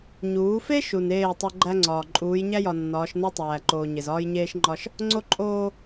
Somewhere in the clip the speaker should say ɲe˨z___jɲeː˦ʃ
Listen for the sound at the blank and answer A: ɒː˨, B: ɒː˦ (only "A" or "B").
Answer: B